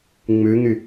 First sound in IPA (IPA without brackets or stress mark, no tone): ŋ͡m